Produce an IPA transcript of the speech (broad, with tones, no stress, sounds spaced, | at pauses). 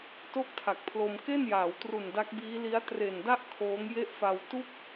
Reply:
t o˥˩ k̚ tʰ a˨˩ k̚ pʰ l o˧ m k e˥˩ n j aː˩˦ w t r u˨˩ n d a˦˥ k̚ b iː˦˥ l i˦˥ a̯ t r e˨˩ n d a˥˩ ʔ kʰ oː˦˥ ŋ j e˥˩ ʔ f a˧ w t u˥˩ k̚